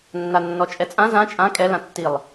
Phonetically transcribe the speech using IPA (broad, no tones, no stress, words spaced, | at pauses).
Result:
nːanːɔt͡ʃʼɛt͡sʼã zã t͡ʃʼã kʼɛ lãtːilˠ